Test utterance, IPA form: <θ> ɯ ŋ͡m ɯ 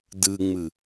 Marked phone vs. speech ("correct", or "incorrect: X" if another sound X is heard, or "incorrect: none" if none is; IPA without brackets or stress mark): incorrect: d